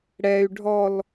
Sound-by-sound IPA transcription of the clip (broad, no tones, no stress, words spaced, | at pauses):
ɽɛy̯ ɖʱɔl